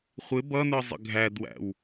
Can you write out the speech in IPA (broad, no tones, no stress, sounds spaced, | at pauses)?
χʷ ɪ b ʌ n ə˞ zˤ ə̰ ɡʱ æ d w æ̰ w